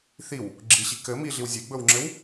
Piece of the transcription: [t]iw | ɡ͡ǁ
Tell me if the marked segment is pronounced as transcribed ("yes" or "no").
no